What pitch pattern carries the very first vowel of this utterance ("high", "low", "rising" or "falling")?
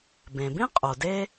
low